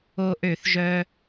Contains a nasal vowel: no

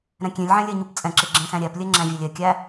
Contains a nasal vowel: yes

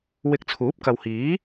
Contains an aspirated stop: yes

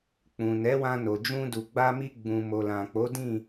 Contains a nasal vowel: yes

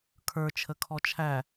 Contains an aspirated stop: yes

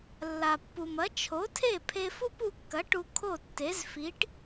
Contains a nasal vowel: no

